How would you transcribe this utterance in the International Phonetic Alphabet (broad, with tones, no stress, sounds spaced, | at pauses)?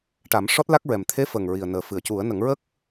ʈ a˨˩˦ m ʂ ɔ˦˥ t̚ l a˦˥ k̚ ɹ ɛ˨˩ m t̪ʰ e˧˥ f ə˨˩ ŋ ɹ i˨˩ ə̯ n əː˨˩ f ɨ˨˩˨ ə̯ c u˨˩˦ ə̯ n ə˨˩˦ ŋ ɹ ə˦˥ k̚